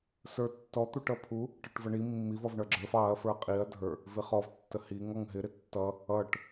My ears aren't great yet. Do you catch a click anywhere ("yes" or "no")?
yes